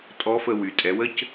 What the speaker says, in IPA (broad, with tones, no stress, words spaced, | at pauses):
tʼɔ˧˥fə˧wy˩ tʼɛ˩˧wə˥c